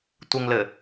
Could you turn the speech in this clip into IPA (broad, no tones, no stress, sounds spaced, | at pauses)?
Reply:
tʷ ɘ ŋ l ɘ